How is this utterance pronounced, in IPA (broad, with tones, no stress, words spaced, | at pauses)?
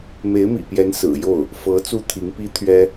me˧˥ɪ̯mḭ˨˩pjɛ˧˥n sɹ̩˨˩ jo˥˩ʊ̯ | fɤ˧˥ t͡su˥˩t̪ʰi˧˥ŋpi˥ t̪ʰɥɛ˥